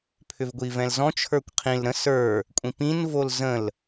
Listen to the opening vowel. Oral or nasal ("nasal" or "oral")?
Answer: oral